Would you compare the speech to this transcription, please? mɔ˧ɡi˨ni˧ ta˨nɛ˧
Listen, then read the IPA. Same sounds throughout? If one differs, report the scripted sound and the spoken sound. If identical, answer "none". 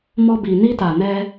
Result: ɡ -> b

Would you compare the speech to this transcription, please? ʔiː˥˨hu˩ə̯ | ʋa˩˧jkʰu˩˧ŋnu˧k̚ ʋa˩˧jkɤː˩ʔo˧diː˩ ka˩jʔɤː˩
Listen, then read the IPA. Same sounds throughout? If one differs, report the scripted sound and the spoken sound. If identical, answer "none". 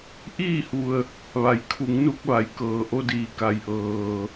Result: none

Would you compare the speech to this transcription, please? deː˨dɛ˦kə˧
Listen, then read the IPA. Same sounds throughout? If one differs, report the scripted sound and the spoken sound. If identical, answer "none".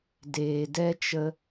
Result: k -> t͡ʃ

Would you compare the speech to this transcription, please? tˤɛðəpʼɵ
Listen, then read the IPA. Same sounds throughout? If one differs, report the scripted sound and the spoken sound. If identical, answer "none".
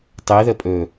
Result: none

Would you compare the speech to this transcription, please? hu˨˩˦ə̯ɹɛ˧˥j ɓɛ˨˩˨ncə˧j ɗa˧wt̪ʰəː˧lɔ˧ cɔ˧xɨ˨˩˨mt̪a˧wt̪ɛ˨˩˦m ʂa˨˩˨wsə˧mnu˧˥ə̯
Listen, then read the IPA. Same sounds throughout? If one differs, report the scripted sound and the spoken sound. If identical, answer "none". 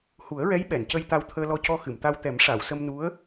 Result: ɗ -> t̪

